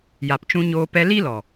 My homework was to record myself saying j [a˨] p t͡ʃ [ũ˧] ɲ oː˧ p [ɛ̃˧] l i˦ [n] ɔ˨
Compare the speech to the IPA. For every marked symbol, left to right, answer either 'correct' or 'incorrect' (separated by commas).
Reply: correct, correct, incorrect, incorrect